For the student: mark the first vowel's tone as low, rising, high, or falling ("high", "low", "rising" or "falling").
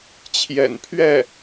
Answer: low